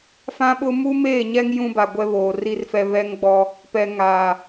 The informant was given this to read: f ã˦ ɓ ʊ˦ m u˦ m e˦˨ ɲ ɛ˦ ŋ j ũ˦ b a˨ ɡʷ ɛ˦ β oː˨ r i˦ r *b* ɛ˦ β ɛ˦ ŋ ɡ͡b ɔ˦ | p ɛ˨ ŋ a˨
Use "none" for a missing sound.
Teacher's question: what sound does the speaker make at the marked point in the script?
f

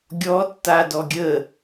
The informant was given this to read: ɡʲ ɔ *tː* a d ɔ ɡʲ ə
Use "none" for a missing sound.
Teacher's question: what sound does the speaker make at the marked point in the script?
tː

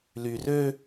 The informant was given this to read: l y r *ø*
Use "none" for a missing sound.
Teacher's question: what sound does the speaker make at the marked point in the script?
ø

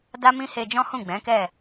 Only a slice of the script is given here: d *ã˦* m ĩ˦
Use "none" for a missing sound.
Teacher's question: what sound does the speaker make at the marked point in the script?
a˦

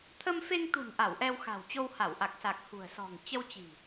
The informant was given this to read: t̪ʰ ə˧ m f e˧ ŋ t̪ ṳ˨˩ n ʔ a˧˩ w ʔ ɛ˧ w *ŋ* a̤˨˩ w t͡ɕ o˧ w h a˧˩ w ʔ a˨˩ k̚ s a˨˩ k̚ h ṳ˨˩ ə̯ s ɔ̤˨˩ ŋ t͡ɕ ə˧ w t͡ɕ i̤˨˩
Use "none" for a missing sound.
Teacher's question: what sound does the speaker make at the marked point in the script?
x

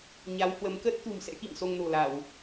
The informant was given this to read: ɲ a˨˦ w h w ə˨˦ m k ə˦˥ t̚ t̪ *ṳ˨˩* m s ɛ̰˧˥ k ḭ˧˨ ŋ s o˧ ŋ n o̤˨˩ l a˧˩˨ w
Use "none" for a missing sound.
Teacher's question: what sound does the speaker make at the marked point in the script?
ṳ˨˩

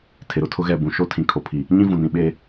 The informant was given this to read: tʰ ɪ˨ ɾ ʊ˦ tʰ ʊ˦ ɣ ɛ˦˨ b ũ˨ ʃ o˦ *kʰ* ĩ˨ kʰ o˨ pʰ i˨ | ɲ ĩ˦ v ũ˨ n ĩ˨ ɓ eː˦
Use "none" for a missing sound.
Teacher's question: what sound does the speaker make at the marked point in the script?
tʰ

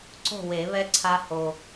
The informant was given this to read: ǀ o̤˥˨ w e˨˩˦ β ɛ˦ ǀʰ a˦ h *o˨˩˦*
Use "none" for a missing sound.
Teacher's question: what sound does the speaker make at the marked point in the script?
o˨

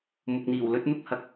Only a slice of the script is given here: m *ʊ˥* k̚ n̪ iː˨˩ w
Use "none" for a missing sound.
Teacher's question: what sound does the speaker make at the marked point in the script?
ʊ˨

